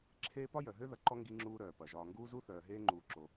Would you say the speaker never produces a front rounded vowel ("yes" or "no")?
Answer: no